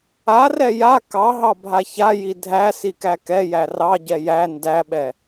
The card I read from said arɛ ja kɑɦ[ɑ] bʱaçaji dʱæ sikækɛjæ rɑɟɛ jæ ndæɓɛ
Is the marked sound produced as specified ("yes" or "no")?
yes